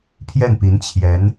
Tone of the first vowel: falling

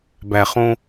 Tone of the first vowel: low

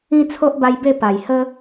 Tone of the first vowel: high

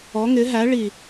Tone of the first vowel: rising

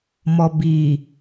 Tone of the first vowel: low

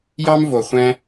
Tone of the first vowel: high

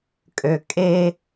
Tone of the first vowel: low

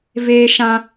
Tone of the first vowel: high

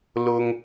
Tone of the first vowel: high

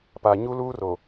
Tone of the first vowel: low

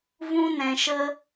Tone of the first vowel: high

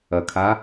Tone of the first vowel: low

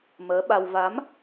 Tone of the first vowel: rising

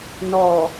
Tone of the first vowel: low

